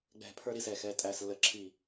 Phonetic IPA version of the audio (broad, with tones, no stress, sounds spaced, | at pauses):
ɡ͡b ɛ̤˧˩ pʰ ə˞˦ ɾ i˥˨ s ɛ˧˩ x ɛ˩˧˩ tʼ æ˧˩ s lː ə˧˩ ǁʰ i˧˩